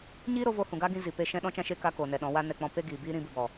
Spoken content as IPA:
ɲ iː˦ ɾ o˧ v o˧ h ũ˨ ɡ a˦ ɡ ĩ˧ z i˨ p e˧ ʃ ɛ̃˧ ɗ ɔ̃˧ t͡ʃ ã˧ ʃ e˧ k a˦ k oː˨ n ɛ˨ ɗ ɔ̃˨˦ w a˦ n ɛ˧ k͡p ɔ̃˧ p e˦ ɡ iː˨ b iː˦ ɾ ĩ˧ b ɨ˨ b ɔ˨

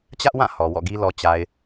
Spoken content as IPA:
t͡ɕ ä˦ ʔ w ã˦˨ h ɔ˨ w ɔ̰˦˨ ɡ i˦ l ɔ˨ t͡ɕ a˨ ɪ̯

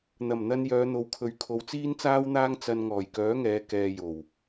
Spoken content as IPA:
n̪ ɐ˨˩ m n̪ ɐ˧ n j œː˨˧ n̪ o˨˧ w kʰ ɵ˨˧ ɥ kʰ o˨˧ w t͡s iː˥ n t͡s aː˥ w n̪ aː˥ ŋ t͡s ɐ˧ n ŋ ɔː˨˩ j k œː˨˥ ŋ ɛː˨˧ k ɛː˧ j o˨˩ w

